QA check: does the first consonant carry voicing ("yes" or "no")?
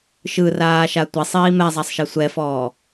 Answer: no